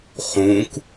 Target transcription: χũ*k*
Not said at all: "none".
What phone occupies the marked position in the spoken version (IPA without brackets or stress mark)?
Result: k